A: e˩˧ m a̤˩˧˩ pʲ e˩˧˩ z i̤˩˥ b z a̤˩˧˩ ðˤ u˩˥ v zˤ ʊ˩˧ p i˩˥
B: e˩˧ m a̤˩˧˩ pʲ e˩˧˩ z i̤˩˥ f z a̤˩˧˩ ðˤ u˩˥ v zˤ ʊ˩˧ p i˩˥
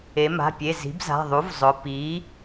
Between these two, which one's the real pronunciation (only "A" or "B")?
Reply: A